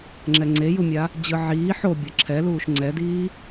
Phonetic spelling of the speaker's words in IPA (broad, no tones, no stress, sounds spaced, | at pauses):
ŋ͡ǁ ɛ ŋ͡ǀ e j u mʲ a | d͡ʑ ɯ ʕ iː ħ o bʲ ʌ ǁʰ ɛ l uː ʃ ŋ͡ǀ ɛ d iː